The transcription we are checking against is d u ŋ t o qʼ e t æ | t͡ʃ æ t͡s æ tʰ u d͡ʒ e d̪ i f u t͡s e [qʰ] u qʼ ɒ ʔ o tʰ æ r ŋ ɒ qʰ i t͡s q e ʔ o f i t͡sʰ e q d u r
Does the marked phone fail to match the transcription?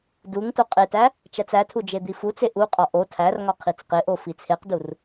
yes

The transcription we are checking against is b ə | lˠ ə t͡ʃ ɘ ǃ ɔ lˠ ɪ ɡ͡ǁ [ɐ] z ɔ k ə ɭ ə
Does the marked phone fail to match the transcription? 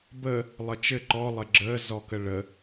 yes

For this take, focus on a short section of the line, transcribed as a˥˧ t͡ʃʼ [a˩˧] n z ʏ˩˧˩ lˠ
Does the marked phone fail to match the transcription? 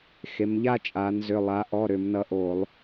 no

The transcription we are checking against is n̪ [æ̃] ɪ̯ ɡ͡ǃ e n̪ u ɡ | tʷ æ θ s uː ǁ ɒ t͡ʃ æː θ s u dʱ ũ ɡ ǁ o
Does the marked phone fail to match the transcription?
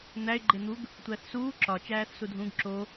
yes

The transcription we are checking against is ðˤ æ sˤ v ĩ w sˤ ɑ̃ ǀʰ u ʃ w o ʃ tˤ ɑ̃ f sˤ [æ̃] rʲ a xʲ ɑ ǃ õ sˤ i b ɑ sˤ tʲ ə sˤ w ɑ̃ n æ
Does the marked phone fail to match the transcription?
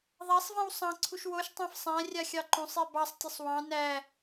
no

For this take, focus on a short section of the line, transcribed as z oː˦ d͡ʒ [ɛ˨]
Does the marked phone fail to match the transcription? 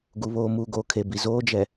no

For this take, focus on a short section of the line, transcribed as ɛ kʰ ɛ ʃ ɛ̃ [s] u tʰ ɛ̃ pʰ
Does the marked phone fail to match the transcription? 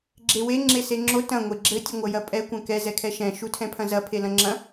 yes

